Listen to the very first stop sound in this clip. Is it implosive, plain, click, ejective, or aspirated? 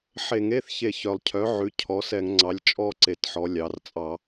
aspirated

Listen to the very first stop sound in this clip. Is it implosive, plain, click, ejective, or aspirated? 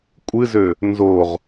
ejective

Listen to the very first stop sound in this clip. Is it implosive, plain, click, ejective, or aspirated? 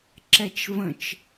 click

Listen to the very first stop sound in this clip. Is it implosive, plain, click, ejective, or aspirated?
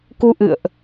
plain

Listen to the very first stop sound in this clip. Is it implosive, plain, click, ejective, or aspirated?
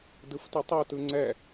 plain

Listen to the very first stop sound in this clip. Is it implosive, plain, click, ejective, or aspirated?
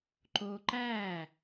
click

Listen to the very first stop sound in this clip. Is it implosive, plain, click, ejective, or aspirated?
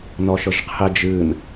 aspirated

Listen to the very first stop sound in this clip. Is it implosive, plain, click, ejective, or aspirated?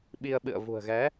implosive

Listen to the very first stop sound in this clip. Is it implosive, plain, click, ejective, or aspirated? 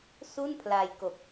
aspirated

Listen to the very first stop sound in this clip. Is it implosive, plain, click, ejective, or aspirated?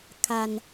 aspirated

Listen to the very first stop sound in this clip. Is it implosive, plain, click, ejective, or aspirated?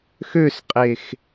ejective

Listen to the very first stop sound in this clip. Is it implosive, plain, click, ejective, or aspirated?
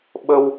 implosive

